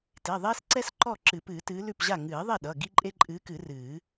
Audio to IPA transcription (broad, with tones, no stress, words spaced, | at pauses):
te˩˧˩ðˤeː˦s ǀɛ˦s ǃɔ˥˩ǁɨ˨˩˦pɨː˨˩˦ tɨː˨˦lʉ˥˩pʑa˥˩ ŋɨː˨˩˦ðˤe˥˩ɗʌ˩˧˩ ɡi˦ǃʼe˦ǃʼɨː˨˦kɨ˨˩˦ rɨː˨˩˦